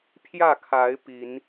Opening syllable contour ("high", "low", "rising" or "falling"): falling